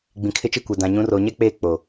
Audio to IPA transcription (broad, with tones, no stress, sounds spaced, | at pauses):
ɡ͡b ĩ˨ kʰ ɪ˦˨ t͡ʃ e˦ kʷ ɛ˨ d ã˨ ɲ ũ˨˦ r oː˨ ɲ ɛ˦ k͡p eː˦˨ k͡p o˨